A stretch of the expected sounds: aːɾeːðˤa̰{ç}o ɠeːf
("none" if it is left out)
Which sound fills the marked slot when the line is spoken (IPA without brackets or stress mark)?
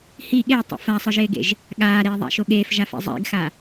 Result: ʃ